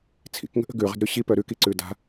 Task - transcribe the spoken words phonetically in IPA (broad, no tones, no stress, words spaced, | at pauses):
t͡sʰḭkŋə̤ʔə̤ ɡʉʁə̤dɾʉ ɕipœ ɾʉkiǀʉ da̤